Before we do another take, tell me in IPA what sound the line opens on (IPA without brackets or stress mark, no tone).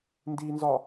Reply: n